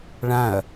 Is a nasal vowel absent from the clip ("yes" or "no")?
no